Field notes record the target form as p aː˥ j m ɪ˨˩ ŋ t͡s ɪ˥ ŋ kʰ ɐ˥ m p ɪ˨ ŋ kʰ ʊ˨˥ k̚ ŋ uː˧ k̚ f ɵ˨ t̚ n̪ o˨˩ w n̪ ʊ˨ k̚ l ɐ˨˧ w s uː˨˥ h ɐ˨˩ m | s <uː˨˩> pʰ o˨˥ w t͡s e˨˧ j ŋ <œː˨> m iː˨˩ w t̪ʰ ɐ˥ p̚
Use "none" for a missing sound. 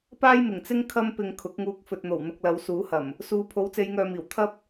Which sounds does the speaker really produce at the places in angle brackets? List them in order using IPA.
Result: uː˨˧, œː˨

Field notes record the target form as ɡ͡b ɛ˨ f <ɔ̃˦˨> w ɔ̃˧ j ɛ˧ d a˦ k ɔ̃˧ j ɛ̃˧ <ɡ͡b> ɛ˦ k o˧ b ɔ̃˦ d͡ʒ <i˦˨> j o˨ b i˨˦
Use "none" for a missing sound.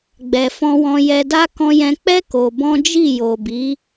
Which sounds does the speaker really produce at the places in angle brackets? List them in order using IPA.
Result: ɔ̃˧, k͡p, i˦˨

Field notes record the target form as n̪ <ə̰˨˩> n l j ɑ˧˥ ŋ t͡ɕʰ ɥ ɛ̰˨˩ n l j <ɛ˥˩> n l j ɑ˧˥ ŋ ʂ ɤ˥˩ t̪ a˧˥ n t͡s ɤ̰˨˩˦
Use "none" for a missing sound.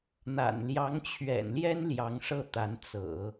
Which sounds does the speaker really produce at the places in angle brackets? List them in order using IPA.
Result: a̰˨˩, ɛ˥

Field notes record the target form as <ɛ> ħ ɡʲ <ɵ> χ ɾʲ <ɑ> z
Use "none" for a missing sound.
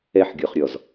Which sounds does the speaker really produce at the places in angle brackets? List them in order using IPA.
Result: ɛ, ɔ, ɔ

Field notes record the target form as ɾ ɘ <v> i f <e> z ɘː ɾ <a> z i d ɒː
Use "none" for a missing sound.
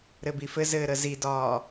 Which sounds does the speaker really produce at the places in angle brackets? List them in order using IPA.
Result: b, ɘ, ə

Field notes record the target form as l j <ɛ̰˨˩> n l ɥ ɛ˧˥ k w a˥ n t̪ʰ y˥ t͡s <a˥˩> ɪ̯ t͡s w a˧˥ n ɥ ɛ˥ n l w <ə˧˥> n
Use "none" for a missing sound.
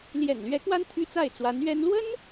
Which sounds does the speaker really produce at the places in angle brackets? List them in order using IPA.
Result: ɛ̰˨˩, a˥˩, ə˥

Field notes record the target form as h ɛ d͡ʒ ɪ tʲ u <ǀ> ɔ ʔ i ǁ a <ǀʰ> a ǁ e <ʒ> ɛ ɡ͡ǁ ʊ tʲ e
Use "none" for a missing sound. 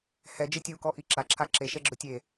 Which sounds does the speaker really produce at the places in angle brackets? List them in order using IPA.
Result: k, ǁʰ, ʃ

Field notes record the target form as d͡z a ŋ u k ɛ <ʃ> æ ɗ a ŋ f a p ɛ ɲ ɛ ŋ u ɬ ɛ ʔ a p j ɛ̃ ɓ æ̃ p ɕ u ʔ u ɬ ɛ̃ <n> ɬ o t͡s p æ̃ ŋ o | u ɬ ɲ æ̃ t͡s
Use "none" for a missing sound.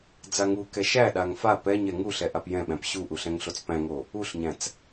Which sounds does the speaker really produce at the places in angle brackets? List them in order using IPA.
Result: ʃ, ŋ

